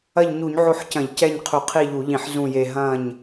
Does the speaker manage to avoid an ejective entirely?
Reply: yes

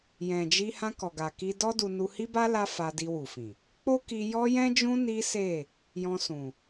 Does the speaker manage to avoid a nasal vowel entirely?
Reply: no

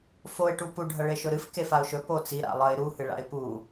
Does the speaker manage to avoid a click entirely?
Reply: yes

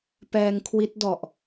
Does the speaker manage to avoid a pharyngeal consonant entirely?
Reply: yes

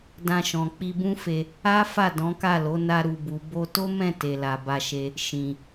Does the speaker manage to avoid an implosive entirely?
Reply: yes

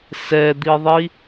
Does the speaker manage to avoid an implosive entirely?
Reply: yes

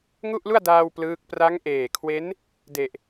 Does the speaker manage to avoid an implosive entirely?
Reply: yes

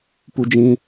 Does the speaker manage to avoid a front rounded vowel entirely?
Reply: yes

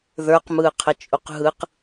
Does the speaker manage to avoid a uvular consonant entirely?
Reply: no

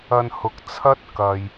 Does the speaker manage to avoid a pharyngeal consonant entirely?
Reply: yes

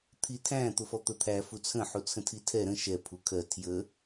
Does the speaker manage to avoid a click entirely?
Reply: yes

